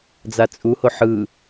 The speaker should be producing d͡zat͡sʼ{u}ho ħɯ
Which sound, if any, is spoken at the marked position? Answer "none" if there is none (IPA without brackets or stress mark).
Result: u